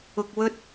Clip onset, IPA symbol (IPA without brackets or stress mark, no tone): ʊ